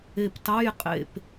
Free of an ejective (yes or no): no